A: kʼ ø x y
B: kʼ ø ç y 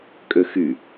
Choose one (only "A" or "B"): A